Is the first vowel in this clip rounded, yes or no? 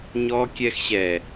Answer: yes